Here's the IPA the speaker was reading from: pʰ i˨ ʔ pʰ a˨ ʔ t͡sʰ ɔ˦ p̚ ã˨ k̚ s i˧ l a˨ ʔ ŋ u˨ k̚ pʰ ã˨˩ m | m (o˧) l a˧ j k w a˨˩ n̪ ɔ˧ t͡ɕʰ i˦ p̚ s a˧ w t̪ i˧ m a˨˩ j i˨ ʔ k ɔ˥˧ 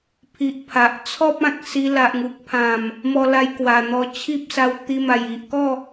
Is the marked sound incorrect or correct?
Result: incorrect